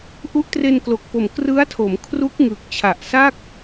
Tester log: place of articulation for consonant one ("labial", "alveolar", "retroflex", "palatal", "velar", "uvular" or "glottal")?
glottal